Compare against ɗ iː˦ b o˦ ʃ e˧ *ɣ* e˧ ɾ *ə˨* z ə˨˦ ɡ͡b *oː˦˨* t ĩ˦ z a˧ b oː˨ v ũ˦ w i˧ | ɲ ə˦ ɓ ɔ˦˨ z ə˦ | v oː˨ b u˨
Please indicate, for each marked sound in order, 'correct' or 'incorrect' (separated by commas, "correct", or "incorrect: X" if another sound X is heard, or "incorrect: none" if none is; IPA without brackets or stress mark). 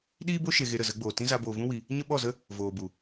correct, correct, incorrect: oː˨